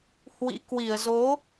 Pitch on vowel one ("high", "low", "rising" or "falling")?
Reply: rising